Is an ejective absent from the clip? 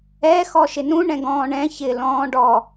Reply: yes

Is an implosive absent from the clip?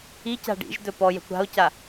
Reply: yes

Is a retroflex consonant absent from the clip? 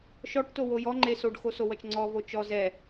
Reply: no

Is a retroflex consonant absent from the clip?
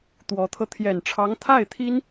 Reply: no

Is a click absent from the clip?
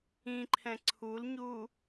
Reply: no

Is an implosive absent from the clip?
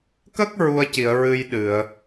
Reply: no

